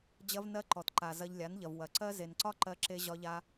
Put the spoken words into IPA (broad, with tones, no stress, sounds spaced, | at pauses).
d͡ʑ ɐ˦ v n ɜ˦ ǃ ɔ˨ t ǃ a˨ z ɐ˧ ʎ lʲ a˨˦ n ʎ ɐ˨ v w ɐ˨ ǀ ɜ˦ z e˨ n ǀ ɒ˦ ǃ ɜ˧ ǁ e˦ ʑ ɒ˦ ʎ a˦